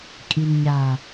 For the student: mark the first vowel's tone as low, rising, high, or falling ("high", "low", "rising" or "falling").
low